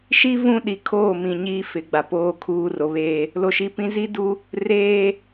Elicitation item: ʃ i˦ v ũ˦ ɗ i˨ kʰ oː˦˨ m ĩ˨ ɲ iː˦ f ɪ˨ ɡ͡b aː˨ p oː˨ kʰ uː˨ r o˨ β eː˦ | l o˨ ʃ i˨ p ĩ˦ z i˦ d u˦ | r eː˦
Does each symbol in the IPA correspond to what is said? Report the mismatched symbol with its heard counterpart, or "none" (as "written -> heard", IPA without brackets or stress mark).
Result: aː˨ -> a˨